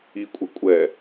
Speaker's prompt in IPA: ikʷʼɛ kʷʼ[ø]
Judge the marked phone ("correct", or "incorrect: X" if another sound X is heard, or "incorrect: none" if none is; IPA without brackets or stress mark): incorrect: ɛ